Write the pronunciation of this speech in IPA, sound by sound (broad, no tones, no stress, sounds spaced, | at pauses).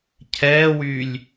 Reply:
cʰ ɛː w yː lʲ